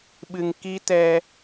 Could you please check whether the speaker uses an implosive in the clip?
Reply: yes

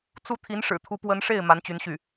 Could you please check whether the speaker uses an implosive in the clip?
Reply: no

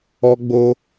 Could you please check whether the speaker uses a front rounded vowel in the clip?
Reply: no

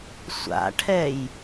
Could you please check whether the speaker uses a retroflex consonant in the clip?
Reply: yes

